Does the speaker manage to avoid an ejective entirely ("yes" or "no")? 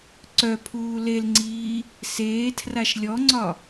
yes